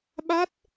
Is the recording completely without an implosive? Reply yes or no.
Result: no